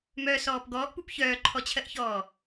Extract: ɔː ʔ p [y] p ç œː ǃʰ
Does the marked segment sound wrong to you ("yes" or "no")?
yes